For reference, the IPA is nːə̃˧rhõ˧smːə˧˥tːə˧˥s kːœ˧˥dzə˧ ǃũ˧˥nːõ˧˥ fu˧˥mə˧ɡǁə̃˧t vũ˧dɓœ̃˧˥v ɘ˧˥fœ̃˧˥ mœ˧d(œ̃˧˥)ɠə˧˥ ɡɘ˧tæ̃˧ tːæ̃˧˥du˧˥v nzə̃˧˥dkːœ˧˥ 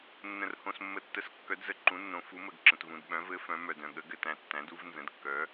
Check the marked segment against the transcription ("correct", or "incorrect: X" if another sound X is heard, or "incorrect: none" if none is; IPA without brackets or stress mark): incorrect: œ̃˧